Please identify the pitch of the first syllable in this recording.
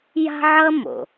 high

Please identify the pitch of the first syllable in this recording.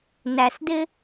low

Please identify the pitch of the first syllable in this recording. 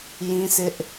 high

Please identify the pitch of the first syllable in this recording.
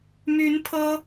rising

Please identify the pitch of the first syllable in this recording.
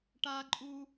high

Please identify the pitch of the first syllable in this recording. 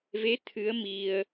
rising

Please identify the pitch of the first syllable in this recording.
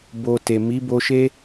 low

